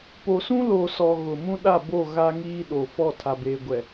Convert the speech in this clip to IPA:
p o˨ s ũ˦ l o˨ s ɔ˨ ɣ ʊ˨ m ũ˦ ɗ a˦˨ b o˦˨ ɣ a˦ ŋ iː˦ ɗ o˨ f ɔ˦˨ tʰ a˨ b eː˨ ɡʷ ɛ˨

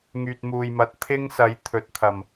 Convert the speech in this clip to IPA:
ŋ yː˨ t̚ m uː˨ j m ɐ˨˥ t̚ t̪ʰ ɪ˥ ŋ s ɐ˨˥ j t̪ʰ ɵ˨ t̚ t̪ʰ ɐ˨˩ m

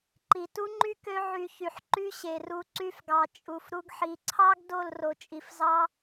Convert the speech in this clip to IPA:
ǃ i˨ t u˦ ŋ͡ǃ y˦ k ø˦ ʕ y˧ ç y˨ ħ ǃ y˦ ɕ e˨ r u˧ ǀ y˧ f ɡ ɑ˨ t͡ʃʼ u˨ f ɾ u˦ ɡ ħ i˨˦ ǀʰ ɑ˦ ɡ d o˦˨ l r o˨ t͡ʃʼ i˨ f z ɑ˦

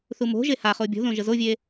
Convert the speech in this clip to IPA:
θ u m o̤ ʒ e h a χ o bʲ o̤ ð õ ʒ ə z o vʲ e

